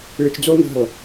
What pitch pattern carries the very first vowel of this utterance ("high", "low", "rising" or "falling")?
low